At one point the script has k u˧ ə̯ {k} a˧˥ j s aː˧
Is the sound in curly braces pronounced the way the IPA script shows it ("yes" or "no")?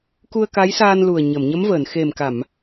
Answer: yes